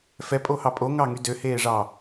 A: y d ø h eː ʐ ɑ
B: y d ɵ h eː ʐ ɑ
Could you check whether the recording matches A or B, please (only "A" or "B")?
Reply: A